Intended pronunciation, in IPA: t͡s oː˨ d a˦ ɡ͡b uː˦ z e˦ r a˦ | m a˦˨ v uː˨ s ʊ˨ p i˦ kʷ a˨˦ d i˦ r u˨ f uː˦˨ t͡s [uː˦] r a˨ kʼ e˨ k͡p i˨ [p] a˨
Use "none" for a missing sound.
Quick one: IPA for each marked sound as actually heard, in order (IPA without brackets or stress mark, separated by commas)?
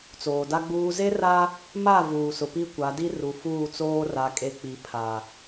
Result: oː˦, pʰ